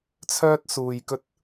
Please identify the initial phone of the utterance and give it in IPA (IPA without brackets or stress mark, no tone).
t͡sʰ